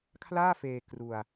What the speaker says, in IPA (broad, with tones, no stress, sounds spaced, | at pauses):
kʰ l aː˥˩ f eː˧ k r u˧ a̯